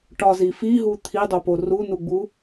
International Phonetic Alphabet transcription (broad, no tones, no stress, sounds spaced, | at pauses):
ʈ ɒ z i f i ɦ u t̪ʰ i dˤ o p o r u n u ɡ͡b u